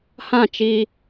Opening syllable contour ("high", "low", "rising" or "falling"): falling